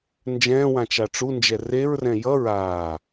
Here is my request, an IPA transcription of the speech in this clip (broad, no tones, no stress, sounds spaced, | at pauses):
n d͡ʒ ɛ̃ː w ã t͡ʃ a ʈ͡ʂ u n d͡ʒ ɛ r e ɹ r ɛ̃ j ʌ ɹ aː